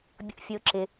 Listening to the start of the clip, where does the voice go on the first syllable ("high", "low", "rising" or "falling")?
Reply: high